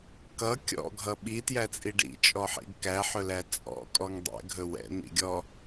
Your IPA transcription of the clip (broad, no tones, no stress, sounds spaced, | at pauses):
k ʌ kʲ ɔ̰ ɡʱ ʌ ɓ i t j æ t͡sʼ i ɖ ḭ t͡ʃʼ ɔ ħ ḭ ɡ k æ ħ ɵ l æ t͡sʼ ɔ̰ kʼ ɔ ŋ dˤ ɛ̰ ɡʱ ɵ w ɛ̰ n̪ ḭ ɡʲ ɔ